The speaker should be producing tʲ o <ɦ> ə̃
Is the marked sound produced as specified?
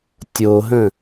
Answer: yes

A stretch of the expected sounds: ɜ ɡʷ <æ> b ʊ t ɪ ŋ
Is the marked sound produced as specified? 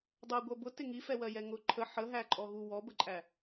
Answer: no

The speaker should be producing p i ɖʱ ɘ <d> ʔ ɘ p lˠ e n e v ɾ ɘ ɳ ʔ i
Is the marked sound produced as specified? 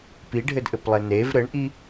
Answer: yes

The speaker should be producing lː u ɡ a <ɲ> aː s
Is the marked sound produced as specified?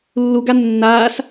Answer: no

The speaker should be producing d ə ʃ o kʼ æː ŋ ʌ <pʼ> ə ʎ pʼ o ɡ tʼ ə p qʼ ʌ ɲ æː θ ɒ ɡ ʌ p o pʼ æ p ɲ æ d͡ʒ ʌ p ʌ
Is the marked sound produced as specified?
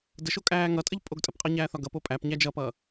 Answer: no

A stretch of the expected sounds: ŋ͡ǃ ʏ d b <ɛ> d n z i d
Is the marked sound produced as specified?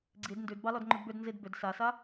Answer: no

